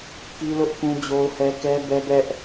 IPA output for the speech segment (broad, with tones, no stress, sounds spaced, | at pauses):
k i˦ l ʊ˦ ʔ k ũ˦ d͡ʑ o˦ ʊ̯ h ɛ˦ k ɛ˦ b ɛ˦ b ɛ˦ ʔ